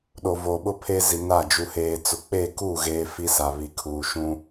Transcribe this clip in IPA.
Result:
ɗo˨voː˨ɓʊ˦pʰe˦ zi˨na˦˨ d͡ʒu˨heː˨t͡sʊ˨ k͡pe˦˨ku˦˨ ɣeː˦fi˦sa˨ βi˨kʰuː˨ʃũ˦

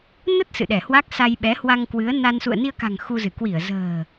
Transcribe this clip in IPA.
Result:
nə˦˥t̚ sɨ̰˧˨ɗɛ˧˩hwa˦˥k̚ sa˧jɓɛ˨˦hwa˧ŋ kwɨ˨˦ə̯na˧n sṵ˧˨ə̯ni˧ə̯ka̤˨˩ŋ xu˧zɨ˧˩ kwi˧˩ə̯zə̤ː˨˩

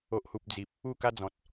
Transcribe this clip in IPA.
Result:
o˨ʔhu˨p̚ d͡zi˨p̚ | u˥˧ka˦d͡zɔ̃˨t̚

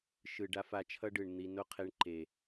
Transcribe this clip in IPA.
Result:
ʃɯ˨ ɖa˦fa˧t͡ʃʰʌ˦ɖɯ˨ɳ n̪i˧ no˦qʰe˧ɳ ǃe˨

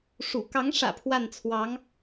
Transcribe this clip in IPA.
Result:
ʂṵ˨˩ kɑ˧˥ŋʂä̰˨˩ pʰwa˥˩nt͡sʰwɑ˧˥ŋ

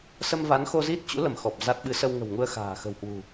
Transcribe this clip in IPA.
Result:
sə˧mva˨˦nxo˧ zi˦˥t̚t͡ɕṵ˧˥lə˧˩m xɔ˨˩p̚za˦˥t̚ ɓɨ˨˦sə˧wŋə̤˨˩wŋu˧ə̯ xa̤ː˨˩xə̤˨˩whwṳ˨˩

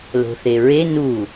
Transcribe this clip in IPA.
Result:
lo̤θeɹe nu

